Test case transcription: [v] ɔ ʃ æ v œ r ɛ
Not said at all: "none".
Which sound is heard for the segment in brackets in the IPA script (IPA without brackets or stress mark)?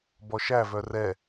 b